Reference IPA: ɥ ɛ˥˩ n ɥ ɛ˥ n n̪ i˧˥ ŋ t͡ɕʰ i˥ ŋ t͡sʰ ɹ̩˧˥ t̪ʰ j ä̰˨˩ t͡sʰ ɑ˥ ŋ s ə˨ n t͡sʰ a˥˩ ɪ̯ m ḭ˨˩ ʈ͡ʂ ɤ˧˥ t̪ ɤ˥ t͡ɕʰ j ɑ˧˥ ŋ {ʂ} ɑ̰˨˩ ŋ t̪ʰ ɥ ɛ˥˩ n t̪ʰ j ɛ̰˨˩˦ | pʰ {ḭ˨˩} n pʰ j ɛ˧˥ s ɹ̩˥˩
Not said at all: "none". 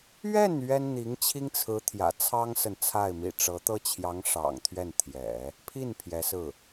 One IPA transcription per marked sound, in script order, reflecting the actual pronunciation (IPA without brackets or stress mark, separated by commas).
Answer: ʂ, i˥˩